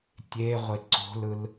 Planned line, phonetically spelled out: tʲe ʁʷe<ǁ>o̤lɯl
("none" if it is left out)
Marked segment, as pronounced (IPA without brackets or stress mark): ǀ